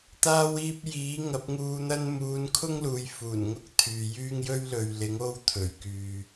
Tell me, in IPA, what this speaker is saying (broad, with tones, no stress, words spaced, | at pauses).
t̪aː˧wiː˧p̚ jiː˨˥ŋɐ˨˥p̚ ŋuː˧n̪ɐ˥n muː˨˧nkʰʊ˥ŋ luː˨˧jfuː˨˩nŋʊ˥k̚ t̪ʰyː˨jyː˥ŋ jɵ˥ɥlɵ˨ɥlɪ˨˥ŋ o˥wt̪ʰɵ˨˩ɥkyː˨